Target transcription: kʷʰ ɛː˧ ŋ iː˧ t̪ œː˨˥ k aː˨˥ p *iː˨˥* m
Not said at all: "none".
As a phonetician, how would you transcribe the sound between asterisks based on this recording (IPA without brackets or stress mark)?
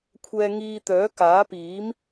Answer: iː˨˥